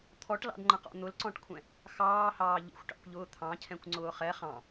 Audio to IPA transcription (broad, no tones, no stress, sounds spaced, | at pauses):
t̪ʰ ɔ ʈ l ɑ̰ d ŋ͡ǃ ə̃ q ɔ̰ n̪ ʊ l ǀ ɔ̃ ʈ kʷʰ ɛ̃ | x ɑː h ɑː ʎ ə̰ xʷ ʈ ɑ̰ kʷ ʎ ʊː t̪ʰ ɑ̃ cʰ ɛ̃ kʷ ŋ͡ǀ ʊː χ ɛ χ ɑ̃